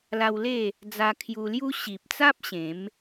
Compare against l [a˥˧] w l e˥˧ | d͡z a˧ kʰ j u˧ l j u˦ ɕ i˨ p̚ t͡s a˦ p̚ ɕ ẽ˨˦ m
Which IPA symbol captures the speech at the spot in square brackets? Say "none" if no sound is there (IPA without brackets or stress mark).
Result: a˧